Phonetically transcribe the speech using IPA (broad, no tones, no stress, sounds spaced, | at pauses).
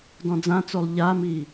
d ɔ̃ d͡z ã t͡s o lˠ ʎ a m i